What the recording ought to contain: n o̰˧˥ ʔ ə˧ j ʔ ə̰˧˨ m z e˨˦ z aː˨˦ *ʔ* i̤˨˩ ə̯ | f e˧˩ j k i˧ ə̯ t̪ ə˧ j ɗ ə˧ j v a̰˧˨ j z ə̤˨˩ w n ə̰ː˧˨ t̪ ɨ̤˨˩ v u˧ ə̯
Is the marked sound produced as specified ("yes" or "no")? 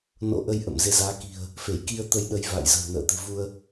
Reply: no